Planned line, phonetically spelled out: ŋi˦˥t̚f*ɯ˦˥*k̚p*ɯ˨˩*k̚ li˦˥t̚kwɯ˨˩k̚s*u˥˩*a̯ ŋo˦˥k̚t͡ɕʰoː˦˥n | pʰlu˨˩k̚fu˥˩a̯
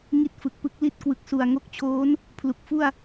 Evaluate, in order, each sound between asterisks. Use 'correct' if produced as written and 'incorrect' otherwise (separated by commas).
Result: incorrect, incorrect, incorrect